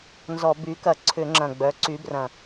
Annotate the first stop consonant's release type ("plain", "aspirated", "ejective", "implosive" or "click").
plain